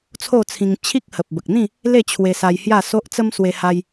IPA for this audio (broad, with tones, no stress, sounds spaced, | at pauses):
t͡sʰ o˥˧ t͡sʰ ĩ˧ ŋ t͡ɕʰ i˦ k̚ h ə˨ p̚ b ə˨ k̚ n̪ ĩ˥˧ | l e˥˧ t͡ɕʰ w e˧ s a˧ j h j a˥˧ s o˦ ʔ t͡s ə˦ m s w e˧ h a˧ j